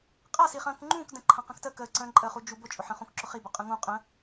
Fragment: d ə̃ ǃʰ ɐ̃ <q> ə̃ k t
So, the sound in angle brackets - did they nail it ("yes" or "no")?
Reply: yes